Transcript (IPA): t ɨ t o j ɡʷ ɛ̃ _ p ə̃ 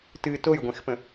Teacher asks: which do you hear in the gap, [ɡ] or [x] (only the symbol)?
x